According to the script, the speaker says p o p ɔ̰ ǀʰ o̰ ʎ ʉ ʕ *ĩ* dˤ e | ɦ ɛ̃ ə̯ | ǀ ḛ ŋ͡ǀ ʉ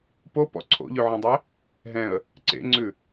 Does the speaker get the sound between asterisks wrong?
yes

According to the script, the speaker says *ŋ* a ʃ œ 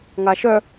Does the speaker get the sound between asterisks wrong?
no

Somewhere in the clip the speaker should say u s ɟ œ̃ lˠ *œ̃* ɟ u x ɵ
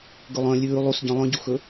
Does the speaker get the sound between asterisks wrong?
no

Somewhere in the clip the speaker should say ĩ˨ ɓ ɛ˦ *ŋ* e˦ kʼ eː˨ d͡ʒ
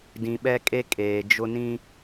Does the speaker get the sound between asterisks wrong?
yes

